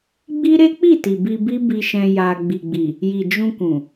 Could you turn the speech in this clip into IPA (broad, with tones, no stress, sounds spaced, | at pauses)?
ɡ͡b i˦ ɾ e˦ k͡p i˦˨ t i˨ b i˧ b i˦ b i˧ ʃ ɛ̃˧ j a˧ ɡ͡b i˨ ɡ͡b i˨ | j i˨ d͡ʒ ũ˧ k ũ˨